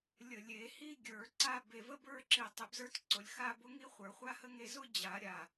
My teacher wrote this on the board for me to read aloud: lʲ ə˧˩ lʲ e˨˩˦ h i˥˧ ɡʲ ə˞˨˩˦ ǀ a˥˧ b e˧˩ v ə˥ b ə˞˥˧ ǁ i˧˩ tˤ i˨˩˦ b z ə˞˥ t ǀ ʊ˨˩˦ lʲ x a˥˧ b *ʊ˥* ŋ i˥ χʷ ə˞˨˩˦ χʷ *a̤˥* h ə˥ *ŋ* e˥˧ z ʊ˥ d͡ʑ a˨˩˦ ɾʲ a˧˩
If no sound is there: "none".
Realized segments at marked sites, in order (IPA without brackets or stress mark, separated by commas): ʊ˥, a˥, ŋ